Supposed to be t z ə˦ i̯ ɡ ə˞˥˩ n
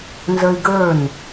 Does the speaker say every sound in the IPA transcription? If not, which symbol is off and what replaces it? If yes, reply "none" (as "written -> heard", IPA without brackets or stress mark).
t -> n